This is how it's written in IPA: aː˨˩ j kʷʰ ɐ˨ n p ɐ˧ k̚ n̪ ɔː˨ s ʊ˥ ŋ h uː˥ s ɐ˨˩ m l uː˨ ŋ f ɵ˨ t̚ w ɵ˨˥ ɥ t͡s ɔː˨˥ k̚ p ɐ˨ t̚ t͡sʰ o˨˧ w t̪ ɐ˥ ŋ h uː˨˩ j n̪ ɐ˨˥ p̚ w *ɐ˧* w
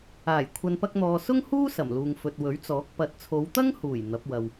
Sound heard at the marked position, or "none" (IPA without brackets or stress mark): ɐ˧